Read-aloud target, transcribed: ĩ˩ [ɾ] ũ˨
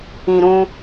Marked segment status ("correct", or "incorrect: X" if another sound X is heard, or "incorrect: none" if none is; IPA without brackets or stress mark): correct